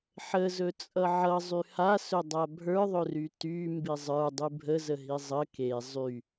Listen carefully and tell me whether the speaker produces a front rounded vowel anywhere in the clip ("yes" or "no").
yes